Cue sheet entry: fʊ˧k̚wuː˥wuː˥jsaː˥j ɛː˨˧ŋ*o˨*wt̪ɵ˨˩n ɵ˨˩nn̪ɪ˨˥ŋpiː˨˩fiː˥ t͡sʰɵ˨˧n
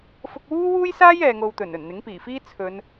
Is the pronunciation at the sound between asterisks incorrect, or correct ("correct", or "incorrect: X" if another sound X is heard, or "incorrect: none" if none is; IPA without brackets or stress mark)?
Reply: incorrect: o˧